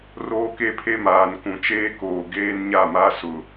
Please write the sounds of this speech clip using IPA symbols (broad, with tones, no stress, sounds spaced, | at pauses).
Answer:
r oː˦ k e˦ pʰ e˦ m aː˨ n k ũ˨ t͡ʃ eː˦ k oː˨ ɡ eː˦ n ɲ a˦˨ m a˦ s ʊ˨